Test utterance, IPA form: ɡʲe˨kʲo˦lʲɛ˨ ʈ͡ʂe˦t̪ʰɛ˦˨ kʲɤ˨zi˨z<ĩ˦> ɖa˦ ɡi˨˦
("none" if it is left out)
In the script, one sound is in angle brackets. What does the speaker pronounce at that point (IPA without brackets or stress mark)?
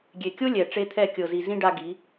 ĩ˦